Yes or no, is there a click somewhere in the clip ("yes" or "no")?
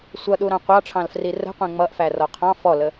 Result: no